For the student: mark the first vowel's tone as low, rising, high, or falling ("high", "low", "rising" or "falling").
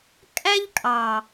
high